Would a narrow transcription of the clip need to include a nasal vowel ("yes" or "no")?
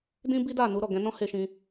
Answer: yes